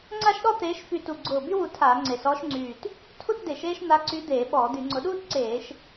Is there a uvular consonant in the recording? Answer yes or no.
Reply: no